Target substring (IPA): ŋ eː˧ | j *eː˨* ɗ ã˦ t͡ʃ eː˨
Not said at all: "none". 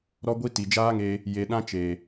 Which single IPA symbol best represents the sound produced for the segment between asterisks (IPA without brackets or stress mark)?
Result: e˨